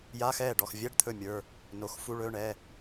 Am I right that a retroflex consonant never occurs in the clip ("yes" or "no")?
no